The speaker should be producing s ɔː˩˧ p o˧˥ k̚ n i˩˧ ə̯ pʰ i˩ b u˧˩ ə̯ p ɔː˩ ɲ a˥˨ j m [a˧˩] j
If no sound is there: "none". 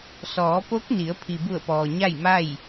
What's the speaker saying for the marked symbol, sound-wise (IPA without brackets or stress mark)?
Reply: a˥˨